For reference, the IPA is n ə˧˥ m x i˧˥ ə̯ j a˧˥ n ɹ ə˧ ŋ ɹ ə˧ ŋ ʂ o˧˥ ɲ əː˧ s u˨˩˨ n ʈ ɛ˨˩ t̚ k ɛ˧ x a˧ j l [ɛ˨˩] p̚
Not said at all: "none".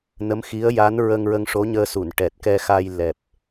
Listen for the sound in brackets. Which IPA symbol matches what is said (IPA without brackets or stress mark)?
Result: ɛ˨˩